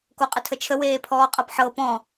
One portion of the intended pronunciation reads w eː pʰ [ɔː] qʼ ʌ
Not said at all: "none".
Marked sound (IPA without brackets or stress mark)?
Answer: ɔː